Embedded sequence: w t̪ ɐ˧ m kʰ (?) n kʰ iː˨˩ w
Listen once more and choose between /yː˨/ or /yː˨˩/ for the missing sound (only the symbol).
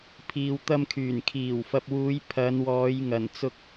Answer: yː˨˩